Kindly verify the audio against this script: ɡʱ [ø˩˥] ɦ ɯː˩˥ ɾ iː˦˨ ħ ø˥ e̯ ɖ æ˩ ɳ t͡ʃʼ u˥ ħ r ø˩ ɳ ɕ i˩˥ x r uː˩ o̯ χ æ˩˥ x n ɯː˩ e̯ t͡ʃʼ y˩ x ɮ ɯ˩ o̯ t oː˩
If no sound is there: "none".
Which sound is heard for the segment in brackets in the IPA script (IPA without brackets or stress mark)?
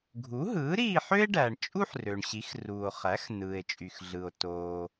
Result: u˩˥